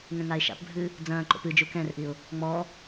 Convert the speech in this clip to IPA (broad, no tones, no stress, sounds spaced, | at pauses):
ŋ ɛ̃ ŋ a ɪ̯ ʃ a̰ p bʱ ɨː | d͡z ɐ̃ː ǃ o̰ p ɨ d͡ʒ u k ɛ̃ r ʔ i ʊ̯ | ŋ͡m ɔː